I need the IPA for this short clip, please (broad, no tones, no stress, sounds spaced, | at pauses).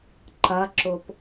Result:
ǃ ɐ ǁ ʊ p